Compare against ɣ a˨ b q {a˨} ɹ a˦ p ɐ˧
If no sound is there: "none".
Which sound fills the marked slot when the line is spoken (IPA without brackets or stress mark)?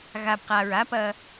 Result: a˨